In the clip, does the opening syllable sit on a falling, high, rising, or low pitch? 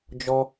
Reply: high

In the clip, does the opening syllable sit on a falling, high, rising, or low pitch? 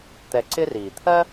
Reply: low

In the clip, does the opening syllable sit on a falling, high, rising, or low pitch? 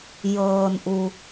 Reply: low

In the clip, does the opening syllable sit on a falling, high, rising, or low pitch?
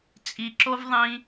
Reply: low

